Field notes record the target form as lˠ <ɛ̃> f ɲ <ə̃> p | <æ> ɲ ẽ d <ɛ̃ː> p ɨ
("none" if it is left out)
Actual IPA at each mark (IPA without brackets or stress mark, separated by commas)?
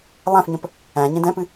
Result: æ̃, ə̃, æ̃, ɛ̃